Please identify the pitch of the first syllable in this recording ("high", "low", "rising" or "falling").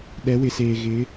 rising